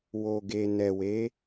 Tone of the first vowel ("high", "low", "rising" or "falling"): low